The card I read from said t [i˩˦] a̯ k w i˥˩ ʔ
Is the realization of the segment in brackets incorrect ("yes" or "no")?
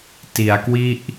no